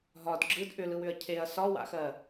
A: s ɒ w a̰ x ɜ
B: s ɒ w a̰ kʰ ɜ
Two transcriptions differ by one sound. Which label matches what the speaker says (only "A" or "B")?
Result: A